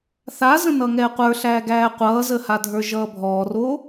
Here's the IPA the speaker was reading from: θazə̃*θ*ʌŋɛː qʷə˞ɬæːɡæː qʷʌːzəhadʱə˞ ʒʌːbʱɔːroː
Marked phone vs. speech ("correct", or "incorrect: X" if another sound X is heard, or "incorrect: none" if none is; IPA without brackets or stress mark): incorrect: n